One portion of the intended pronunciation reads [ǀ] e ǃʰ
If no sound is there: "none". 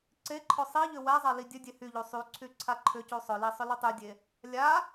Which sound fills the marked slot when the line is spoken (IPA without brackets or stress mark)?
ǀ